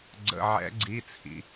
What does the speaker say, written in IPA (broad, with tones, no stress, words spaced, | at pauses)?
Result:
ɡ͡ǀə̰˩˧˩ʕɛ̰˨˩˦ɡ͡ǀi˩˧˩ t͡sʰḭ˩